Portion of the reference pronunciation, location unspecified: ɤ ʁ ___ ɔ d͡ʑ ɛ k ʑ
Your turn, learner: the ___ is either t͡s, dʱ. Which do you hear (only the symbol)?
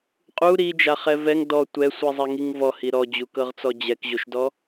t͡s